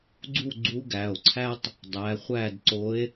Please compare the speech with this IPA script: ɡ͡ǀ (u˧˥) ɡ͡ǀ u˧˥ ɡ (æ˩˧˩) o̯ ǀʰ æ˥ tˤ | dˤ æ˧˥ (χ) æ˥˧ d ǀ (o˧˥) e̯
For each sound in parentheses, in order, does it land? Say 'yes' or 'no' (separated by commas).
no, yes, no, yes